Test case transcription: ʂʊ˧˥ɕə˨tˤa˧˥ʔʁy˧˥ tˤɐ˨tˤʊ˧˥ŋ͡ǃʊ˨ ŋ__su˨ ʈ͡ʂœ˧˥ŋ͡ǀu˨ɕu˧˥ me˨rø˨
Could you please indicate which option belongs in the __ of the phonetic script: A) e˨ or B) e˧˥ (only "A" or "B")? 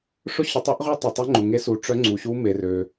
B